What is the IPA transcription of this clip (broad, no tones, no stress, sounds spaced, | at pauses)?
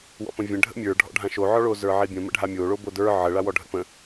w ɔ̰ p ə̃ vʲ ə̃ ɖʱ ə̰ mʲ ə˞ ɖʱ ɔ̰ ɖʱ ã ʃ o ʕ ɔ ɭ o z ə˞ ʕ i bʲ ə̃ m ə̰ ɖʱ a mʲ o ɭ o b o d ə˞ ʕ ə ɭ a w ɔ ɖʱ ə̰ p ə̃